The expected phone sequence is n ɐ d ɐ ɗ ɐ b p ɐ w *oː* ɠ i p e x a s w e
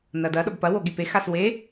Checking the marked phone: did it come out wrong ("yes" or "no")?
yes